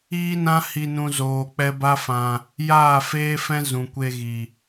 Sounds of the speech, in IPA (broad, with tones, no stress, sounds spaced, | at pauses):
iː˦ n ã˦ h i˧ n ũ˧ z oː˨ k͡p ɛ˧ b a˦ f ã˧ | j aː˦˨ f eː˦ f ɛ̃˦ z ũ˨ kʷ e˧ ɣ i˨